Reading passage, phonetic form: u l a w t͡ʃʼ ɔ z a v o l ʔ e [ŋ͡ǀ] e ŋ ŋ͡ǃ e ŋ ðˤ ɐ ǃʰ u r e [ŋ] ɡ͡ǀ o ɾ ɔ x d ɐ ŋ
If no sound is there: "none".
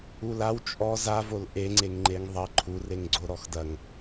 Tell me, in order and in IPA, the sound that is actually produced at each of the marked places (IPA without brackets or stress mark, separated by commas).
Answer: ŋ͡ǀ, ŋ